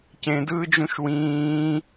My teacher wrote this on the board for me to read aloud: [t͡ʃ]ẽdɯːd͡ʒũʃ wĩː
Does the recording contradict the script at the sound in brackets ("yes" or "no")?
yes